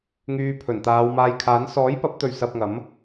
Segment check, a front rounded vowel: present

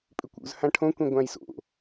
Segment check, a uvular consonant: absent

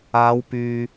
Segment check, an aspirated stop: absent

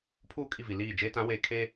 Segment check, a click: absent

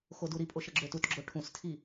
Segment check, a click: present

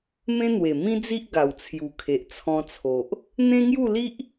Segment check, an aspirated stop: present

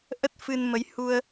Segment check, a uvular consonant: absent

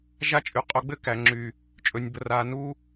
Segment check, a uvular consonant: present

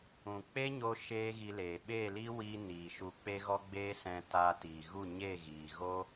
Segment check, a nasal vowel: present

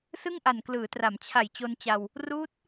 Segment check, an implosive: absent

